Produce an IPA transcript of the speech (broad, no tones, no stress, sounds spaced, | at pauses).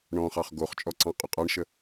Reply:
ɳ ɔ̃ χ ɑ χ ɡ o χ t͡ʃʼ ɔ ǀ ɑ̃ qʼ ɵ qʼ ɑ ɳ ʃ ə